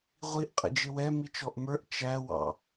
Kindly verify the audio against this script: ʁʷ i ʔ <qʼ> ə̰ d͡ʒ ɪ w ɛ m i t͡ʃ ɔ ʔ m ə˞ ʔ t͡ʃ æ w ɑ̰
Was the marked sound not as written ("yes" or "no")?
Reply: no